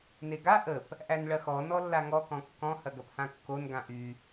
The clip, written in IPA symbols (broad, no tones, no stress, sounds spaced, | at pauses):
n e ɡ a ʔ ə p | ʔ æ n ɭ ɐ x ɔ n ɔ lː a ŋ ɔ k ɔ̃ kː ɔ̃ h ɐ ɡ ɐ p h ã kː o n ɡ ã ʔ y